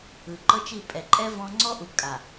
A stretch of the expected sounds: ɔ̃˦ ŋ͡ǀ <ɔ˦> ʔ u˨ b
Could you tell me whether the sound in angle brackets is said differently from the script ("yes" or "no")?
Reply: no